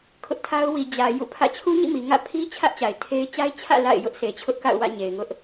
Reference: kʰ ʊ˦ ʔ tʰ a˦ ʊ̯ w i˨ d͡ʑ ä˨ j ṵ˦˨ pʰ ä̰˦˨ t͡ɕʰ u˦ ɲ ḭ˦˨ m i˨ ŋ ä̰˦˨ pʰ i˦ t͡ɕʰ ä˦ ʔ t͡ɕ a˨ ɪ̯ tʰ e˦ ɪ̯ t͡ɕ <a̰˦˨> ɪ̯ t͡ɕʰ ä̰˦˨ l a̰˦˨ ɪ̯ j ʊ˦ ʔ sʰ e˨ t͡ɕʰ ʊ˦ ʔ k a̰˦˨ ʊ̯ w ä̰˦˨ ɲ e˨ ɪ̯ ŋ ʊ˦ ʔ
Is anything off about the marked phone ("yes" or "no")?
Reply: yes